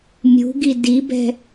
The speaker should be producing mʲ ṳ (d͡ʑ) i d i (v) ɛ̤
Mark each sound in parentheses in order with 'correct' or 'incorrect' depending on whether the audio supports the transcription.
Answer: incorrect: ɡ, incorrect: b

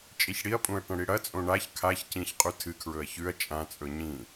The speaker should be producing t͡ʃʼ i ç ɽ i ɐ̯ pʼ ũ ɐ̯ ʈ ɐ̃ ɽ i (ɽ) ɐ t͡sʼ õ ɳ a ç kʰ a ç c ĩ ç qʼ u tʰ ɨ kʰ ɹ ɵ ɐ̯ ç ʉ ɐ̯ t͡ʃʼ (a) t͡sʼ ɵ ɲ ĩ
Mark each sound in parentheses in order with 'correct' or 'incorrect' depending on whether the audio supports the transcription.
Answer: correct, incorrect: ã

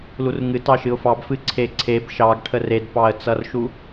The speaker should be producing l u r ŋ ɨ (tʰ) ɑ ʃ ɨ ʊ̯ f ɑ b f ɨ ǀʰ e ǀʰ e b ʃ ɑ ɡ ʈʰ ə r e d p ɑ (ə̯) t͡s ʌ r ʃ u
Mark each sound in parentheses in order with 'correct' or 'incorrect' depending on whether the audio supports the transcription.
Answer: incorrect: t, correct

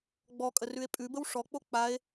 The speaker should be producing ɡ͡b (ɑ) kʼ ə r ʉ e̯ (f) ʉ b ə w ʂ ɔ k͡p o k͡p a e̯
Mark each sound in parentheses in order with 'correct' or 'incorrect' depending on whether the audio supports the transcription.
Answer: incorrect: ɔ, incorrect: pʼ

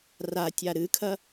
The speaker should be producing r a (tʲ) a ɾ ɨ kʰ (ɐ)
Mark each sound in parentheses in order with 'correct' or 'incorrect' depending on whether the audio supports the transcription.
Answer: correct, correct

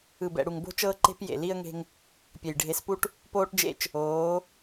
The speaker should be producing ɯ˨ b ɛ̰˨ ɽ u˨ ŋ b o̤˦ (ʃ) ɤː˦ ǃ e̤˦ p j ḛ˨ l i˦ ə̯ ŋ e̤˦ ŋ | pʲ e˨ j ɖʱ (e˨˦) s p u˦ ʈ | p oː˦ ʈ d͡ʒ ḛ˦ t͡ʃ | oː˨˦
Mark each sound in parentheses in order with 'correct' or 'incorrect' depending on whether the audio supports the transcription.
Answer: incorrect: t͡ʃ, correct

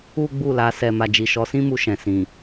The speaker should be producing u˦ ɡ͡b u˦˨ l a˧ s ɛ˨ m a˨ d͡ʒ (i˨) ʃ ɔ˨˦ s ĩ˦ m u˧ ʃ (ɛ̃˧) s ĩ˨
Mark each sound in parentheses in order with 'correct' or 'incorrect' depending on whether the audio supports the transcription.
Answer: correct, incorrect: ɛ̃˨

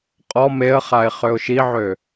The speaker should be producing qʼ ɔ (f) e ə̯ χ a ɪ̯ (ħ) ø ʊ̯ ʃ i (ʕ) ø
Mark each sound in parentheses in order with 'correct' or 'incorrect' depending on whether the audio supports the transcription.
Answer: incorrect: m, incorrect: χ, correct

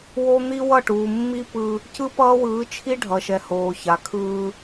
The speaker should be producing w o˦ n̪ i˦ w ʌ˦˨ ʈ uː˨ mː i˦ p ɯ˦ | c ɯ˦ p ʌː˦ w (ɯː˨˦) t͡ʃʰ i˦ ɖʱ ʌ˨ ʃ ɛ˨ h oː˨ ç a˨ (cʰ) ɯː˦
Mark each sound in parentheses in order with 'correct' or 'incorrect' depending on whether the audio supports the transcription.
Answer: correct, incorrect: kʰ

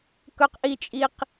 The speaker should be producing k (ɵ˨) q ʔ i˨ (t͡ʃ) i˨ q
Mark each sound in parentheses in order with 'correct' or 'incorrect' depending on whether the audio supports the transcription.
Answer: correct, incorrect: t͡ʃʼ

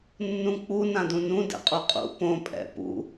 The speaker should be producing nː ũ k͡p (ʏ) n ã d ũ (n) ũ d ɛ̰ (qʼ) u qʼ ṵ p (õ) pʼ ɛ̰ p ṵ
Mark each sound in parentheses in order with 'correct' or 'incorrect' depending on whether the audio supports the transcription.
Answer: incorrect: u, correct, correct, correct

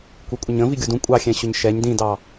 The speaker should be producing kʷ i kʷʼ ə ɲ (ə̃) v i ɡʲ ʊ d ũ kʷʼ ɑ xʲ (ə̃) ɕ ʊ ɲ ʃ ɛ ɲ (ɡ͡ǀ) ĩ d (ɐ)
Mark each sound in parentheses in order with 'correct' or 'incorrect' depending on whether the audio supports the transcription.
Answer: correct, incorrect: ɛ̃, incorrect: d, incorrect: ɑ

